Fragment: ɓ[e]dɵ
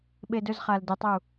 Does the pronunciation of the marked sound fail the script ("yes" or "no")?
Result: no